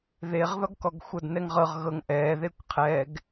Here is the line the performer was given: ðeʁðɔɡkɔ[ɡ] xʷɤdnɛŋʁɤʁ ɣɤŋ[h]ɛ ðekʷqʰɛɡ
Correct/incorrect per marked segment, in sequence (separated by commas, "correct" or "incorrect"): correct, incorrect